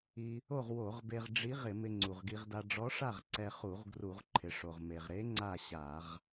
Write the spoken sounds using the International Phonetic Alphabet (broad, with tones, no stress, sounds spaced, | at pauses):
i˧ | o˥˨ ʁ w o˧˩˧ ʁ b e˧ ʁ ɖ͡ʐ i˧˥ ʁ ɪ˧˩˧ m ɪ˧ ŋ͡ǀ u˩ ʁ ɡ i˧ ʁ d a˧ ɖ͡ʐ ɔ˧˥ ʂ a˥˨ ʁ ǀ ɛ˧ χ u˧˩˧ ʁ ɡ r u˧˩˧ ʁ ǃʰ ɪ˩ ʂ o˩ ʁ m e˩ ʁ ɾ e˧˥ ŋ͡ǀ a˥˨ ɕ a˧˩˧ ʁ